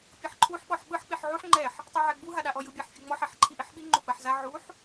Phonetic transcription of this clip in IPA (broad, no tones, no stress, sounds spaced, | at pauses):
pʲ ɤ ħ ǃʰ u ħ ɓ ɔ ħ ɓ ɯ ħ k͡p i ħ ʕ u ħ ŋ͡ǃ ɛ ħ | tˤ i ʕ ɛ ɡ͡b u ɦ a ɗ a ʔ ɔ j ɯ bʲ a ħ fʲ ɯ ŋ͡m ɔ ħ ɛ ħ ǃʰ i ʔ i ħ ɓ i ŋ͡ǃ u ɡ͡b a ħ z a ʕ u ħ